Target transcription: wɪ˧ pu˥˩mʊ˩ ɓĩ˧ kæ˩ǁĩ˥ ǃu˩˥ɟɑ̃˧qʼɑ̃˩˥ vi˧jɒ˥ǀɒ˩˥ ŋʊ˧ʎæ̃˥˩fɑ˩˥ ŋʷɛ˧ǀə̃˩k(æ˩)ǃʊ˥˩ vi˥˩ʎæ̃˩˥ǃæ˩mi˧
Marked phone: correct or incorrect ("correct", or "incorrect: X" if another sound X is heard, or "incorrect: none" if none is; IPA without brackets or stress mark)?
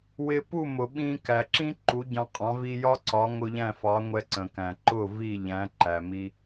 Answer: incorrect: æ̃˩